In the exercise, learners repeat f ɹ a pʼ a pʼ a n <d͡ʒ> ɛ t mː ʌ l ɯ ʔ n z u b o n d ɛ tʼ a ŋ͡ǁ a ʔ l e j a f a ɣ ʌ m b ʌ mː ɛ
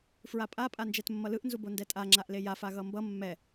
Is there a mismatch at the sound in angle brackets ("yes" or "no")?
no